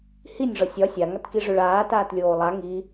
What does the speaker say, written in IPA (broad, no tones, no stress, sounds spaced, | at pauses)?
h i nʲ ʐ ɒ sʲ ɒ sʲ a ŋ a t k i ʐ ø ɭ aː t aː t lʲ oː lˠ a ŋ i